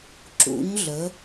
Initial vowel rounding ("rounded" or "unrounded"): rounded